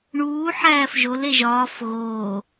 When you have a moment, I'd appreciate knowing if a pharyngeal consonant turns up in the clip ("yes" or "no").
yes